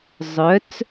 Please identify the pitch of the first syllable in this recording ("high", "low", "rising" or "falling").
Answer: rising